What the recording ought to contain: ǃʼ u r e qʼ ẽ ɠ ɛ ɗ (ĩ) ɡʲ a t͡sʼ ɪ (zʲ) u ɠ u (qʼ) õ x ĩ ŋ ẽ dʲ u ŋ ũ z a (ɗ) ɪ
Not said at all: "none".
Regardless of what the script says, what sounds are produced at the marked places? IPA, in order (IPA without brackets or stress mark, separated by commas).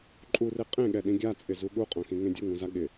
ĩ, z, qʼ, ɠ